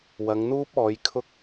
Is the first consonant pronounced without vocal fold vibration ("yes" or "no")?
no